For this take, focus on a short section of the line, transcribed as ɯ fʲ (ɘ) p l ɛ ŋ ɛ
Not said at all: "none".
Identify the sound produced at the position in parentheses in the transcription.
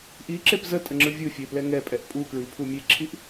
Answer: e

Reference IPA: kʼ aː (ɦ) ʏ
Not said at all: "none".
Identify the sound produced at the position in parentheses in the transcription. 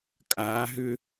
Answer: ɦ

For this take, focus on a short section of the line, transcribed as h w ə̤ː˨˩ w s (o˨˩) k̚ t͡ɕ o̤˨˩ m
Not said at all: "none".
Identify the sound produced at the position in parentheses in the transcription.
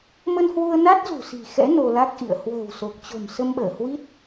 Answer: o˨˩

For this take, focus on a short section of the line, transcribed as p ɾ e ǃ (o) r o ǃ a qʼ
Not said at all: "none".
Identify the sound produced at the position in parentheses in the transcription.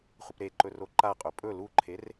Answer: ɵ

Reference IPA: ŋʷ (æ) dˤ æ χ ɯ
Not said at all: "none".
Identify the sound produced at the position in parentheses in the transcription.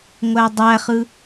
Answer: æ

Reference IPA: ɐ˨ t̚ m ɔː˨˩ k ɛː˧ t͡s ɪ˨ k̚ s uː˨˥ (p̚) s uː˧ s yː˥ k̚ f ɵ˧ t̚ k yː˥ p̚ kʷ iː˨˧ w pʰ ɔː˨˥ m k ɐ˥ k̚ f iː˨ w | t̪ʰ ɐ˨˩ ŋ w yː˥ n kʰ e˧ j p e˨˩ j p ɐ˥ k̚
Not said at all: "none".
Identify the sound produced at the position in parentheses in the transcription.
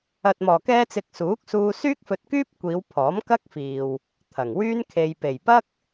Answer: k̚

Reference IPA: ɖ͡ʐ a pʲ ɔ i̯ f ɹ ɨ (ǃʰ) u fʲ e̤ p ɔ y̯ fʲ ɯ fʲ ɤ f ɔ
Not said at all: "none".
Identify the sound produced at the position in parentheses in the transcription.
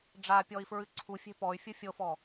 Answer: ǀʰ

